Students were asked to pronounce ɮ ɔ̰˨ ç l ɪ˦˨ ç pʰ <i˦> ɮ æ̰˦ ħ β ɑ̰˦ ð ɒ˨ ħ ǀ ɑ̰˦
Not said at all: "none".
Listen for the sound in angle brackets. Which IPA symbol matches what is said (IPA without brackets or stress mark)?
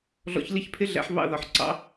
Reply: ɪ˦